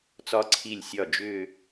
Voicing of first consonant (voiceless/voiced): voiceless